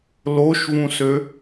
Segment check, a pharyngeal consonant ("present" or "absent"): absent